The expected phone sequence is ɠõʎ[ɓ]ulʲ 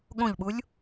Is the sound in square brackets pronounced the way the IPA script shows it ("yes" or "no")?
yes